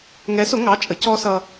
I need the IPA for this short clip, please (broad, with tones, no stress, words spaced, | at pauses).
ŋɛ˨˦sʊ˨˦ŋɑ˩˧˩ t͡ʃʼə˨˦cɔ˦ sʌ˦